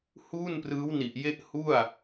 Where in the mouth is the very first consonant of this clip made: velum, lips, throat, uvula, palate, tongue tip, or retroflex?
throat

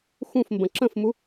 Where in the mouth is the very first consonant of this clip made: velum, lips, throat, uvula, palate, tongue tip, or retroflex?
velum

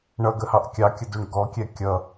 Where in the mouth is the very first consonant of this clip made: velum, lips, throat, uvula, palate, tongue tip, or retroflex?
retroflex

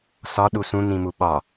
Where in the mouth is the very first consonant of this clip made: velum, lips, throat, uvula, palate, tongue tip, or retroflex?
tongue tip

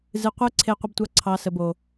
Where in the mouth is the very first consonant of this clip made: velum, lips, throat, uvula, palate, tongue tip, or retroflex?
tongue tip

